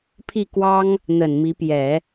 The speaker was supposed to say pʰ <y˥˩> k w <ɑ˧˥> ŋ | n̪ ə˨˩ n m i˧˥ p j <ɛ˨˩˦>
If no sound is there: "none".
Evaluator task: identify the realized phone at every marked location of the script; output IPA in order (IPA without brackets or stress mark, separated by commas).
i˥˩, ɑ˥, ɛ˨˩˦